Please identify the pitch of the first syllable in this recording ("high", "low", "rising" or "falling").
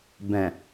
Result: low